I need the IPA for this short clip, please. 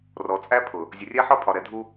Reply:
r ɔ˨ t͡sʼ æ˦ pʰ ʊ˨ | zʲ ə˨ rʲ æ˦ ħ ɒ˦ pʰ ɒ˨ ɾ ɛ˨ dʱ u˦

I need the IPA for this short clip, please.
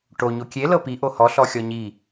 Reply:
ʈ o ɲ o kʲ e l ɤ p i ʔ o h ɔ ɬ ɔ xʲ ɔ ɲ i

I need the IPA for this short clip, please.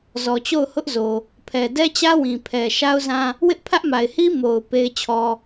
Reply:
z ɔ˨ t͡ɕ o˦˨ ʊ̯ h ʊ˦ ʔ z o˨ | pʰ ɛ˨ d ɛ˦ t͡ɕ ä˦ w ĩ˨ pʰ ɛ˨ ʃ a˦ ʊ̯ z ã˦ | w ɪ˦ ʔ pʰ ä˦ ʔ m a˨ ɪ̯ h i˦ m o˨ ʊ̯ p e˦ ɪ̯ t͡ɕʰ ɔ˦

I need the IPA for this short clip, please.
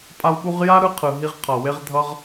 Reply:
pʼ a˧ w ɓ u˧ ʁ j a˥ ɾ ɯ˧ qʰ ɯ˩ ɦ i˧ ʁ qʰ ʌ˩ w e˧ ʁ dʱ ʌ˧ ʁ

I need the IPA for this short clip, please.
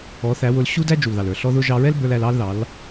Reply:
ɔ˨˦ θ æ˨˦ w ʊ˧ l ɕ u˦ d æ˦ d͡ʒ u˨ l ð ɑ˨ l ə˞˨ ɬ ɔ˦ ð ʊ˦ ʒ ɑ˧ ɹ ɛ˦ l b ə˞˧ l æ˧ l ɑ˦ l ð ɑ˨˦ l

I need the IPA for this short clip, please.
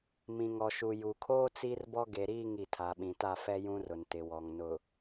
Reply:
m ĩ˨ ŋ ɔ˨ ʃ u˨ j u˨ kʰ oː˦ t͡s i˦ r b ɔ˦ ɡ e˨ ɾ iː˦˨ ŋ i˨ tʰ a˨ ɓ ĩ˨ t a˦˨ f ɛ˦ j ũ˦ r ʊ˨ n t ɪ˨ w ɔ˨ ŋ n ʊ˨

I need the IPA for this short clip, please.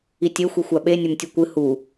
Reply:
i tʲ e xʷ i xʷ a ɓ e nʲ ɵ m tʲ ʉ kʷ ɨ h u

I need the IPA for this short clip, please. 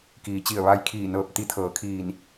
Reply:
k iː˩˧ t͡ɕ i˧˩ ə̯ ʋ a˧ j kʰ iː˧˩ n ɤː˧˩ p̚ t̪ i˧˥ t̪ʰ ɤː˩˧ kʰ iː˧˩ n

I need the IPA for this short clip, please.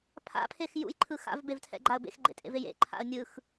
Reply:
pʰ a̰ pʰ e x j ṵ j ǃʰ ɯ x a̰ v b e v tʰ ɛ̰ ɡ͡ǃ a ə̯ b ḛ x ɡ͡ǃ ḛ tʼ ḛ v e j ḛ ǃʰ a̰ ə̯ nʲ ɯ x

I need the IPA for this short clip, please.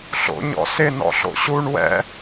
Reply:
ɬ o̰ ɲ ɔ̰ s ɪ n ɔ̰ ɬ o̰ ɕ u ɳ w ɛ̰

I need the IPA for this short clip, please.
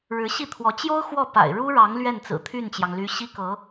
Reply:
ɻ ɻ̩˧˥ ɕ i˥˩ t̪ʰ w ɔ˧˥ t͡ɕ j o˥ ʊ̯ x w ɔ˥˩ p a̰˨˩ ɪ̯ ɻ u˥ ɻ ɑ˧˥ ŋ l ɥ ɛ˥˩ n t͡s ɹ̩˨˩ t̪ʰ y˥˩ n t͡ɕ j ɑ˩ ŋ l y˧˥ ɕ i˥ k ɤ˧˥

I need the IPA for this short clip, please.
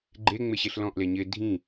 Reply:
ɡ͡ǃ e ŋ͡m ɪ ɕ e ɬ l ɔ̃ ʔ l e ɲ ɪ dʱ ĩ

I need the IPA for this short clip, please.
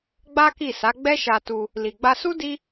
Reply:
ɡ͡b a˦ k i˦˨ s a˨˦ ɡ͡b ɛ˦ ʃ a˧ t u˧ | l i˨ ɡ͡b a˧ s u˦ d i˦

